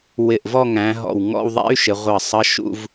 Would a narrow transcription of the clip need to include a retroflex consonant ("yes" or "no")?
no